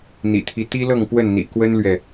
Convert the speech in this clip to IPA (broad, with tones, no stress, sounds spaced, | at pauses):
n̪ ḭ˨˩ t̪ʰ i˦ t̪ i˦ l ɤ˥˨ ŋ p w ə˥˨ n n̪ ḭ˨˩ k w ə˦ n l ɥ ɛ˨